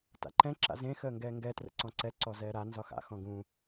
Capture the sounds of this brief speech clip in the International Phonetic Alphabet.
t a̰ ǃ ɛ̃ ǁ a̰ z ẽ x əː ŋ ɡ ɛː ŋ ɡ ɛ t r ə̰ ǀ ɔ̃ ǀ ɛ ǀ ɔ z ɛː ɾ a n z ɒ x a̰ x ɔ̃ ɡ ũ

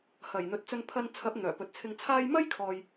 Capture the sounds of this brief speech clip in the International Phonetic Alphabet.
h ɐ˨˩ j n̪ ɵ˨ t̚ t͡s ɵ˧ n pʰ ɐ˧ n t͡sʰ ɐ˨˥ p̚ n̪ œː˨˩ p ɵ˨ t̚ t͡sʰ ɪ˧ ŋ t͡sʰ aː˥ j m ɐ˥ j kʰ ɔː˨ j

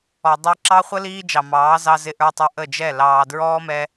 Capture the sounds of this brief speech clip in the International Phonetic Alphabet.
ɔ˨ dˤ i˧ ǁ ɑ˧ χʷ ə˧ l iː˦ d͡ʒ ɑ˨ m ɑː˨˦ z ɑ˧ z ɪ˧ ʔ ə˞˧ tˤ ʊ˧ ʔ ə˦˨ d͡ʒ ɛ˦˨ l ɑː˨ d ɹ ɔː˦ m ɛ˧

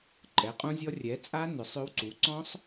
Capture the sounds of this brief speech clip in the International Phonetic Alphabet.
ǃʼ ɛ˩˥ qʼ ũ˦˥ zʲ ɔ˦˥ rʲ ɛ˩˥ t͡sʼ a˦˥ n ʏ˩˥ sˤ ʏ˦˥ w ǀ u˩˥ ǀ ɔ̃˦˥ sˤ

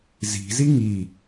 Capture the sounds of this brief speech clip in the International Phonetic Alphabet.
z i̤ z i ŋ i

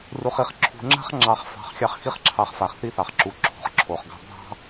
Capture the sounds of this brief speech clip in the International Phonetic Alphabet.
r u˨ χ i˨ χ ǁʰ ṳ˨ ŋ͡ǁ a̤˥ χ ŋ͡ǁ ɑ˨ χ f ɑ̤˨ χ xʲ ɑ˦ χ x i˦ χ ǁʰ ɑ˨ χ f a˩ χ θ i˦ θ ɑ˩ χ ǁ u˩ ǁʰ o̤˩ χ ǁʰ o˩ χ ɡ ɑ̤˦ bʱ ɑ̤˥

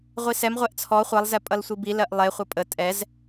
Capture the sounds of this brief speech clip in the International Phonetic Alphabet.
ʁʷ i s ɛ m ʁʷ ɛ ʔ t͡sʰ ɔ χʷ ʌ lˠ z ɛ pʼ ʌ l sʷ i b i l ɜ ʔ lˠ e χʷ ʌ pʼ ə tʼ ɛ z

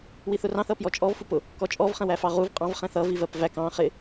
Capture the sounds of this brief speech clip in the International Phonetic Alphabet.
w i θ ʊ r ɑ̃ θ ʌ p j ɔ t͡ʃʼ ɔ v f u p ʊ | k ɔ t͡ʃʼ ɔ v χ ɛ̃ w æ f ɑ ʁ u v qʼ ɑ̃ v χ ɛ̃ θ ʌ v i v ɜ p v æ k ɑ̃ χ ɪ

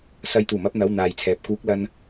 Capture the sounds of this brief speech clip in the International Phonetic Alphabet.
s ɐ˨˧ j t̪ uː˨˩ m ɐ˥ p̚ n̪ ɐ˨˥ w n̪ aː˨ j t͡sʰ ɛː˨ p̚ k uː˨˥ k̚ l ɐ˧ n

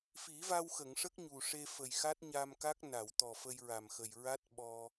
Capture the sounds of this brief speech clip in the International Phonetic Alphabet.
f i˨˩˦ v a˧ w x ə˨˩˨ ŋ ʂ ə˦˥ k̚ ɲ u˨˩ ʂ e˧ f ə˨˩ j x a˦˥ t̚ ɲ a˧ m k a˦˥ k̚ n a˨˩˨ w t̪ ɔ˨˩ f ə˧ j ɹ a˨˩ m x ə˨˩ j ɹ a˦˥ t̚ ɓ ɔ˧

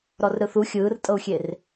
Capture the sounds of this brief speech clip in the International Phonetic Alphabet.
ɾ ɔ r ɾ ɯ θ u xʲ ɯː r tʼ ɤ u̯ xʲ e r

